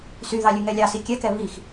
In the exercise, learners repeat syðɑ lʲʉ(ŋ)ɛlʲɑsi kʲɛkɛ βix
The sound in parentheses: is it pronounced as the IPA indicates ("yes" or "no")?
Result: yes